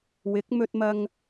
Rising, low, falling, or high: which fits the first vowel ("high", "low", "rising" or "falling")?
rising